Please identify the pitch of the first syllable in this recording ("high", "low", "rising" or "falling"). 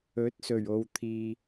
rising